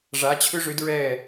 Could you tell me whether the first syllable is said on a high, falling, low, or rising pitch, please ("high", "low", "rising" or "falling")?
rising